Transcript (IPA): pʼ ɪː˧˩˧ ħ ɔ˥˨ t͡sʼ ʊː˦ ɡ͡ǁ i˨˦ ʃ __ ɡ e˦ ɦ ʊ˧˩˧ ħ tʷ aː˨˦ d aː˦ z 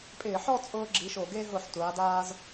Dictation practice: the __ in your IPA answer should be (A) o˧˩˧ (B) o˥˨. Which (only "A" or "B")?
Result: A